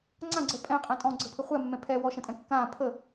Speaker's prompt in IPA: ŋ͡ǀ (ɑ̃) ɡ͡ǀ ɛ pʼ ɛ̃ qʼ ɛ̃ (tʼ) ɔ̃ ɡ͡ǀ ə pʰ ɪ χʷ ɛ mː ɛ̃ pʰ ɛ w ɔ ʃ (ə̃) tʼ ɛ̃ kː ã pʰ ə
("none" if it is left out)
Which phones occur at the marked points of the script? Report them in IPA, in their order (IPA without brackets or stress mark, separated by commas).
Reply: ã, tʼ, ə̃